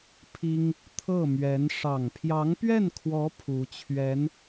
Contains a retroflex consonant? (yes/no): yes